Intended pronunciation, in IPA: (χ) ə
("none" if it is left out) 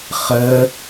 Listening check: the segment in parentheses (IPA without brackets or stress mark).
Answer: χ